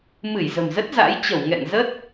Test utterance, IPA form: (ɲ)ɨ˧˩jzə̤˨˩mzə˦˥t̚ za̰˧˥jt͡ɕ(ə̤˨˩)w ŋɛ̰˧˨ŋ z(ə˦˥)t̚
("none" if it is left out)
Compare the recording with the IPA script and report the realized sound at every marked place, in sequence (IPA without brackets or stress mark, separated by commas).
m, ə˧˩, ə˦˥